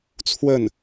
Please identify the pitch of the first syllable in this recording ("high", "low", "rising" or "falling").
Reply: falling